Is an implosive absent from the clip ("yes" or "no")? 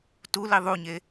yes